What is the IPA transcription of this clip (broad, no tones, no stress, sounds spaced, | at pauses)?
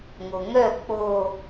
ŋ o ŋ œ k͡p o